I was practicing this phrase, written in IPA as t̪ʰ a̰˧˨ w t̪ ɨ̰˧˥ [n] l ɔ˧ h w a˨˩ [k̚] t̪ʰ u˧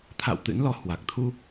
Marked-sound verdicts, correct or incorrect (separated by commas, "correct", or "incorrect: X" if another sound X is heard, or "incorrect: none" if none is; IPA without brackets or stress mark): correct, correct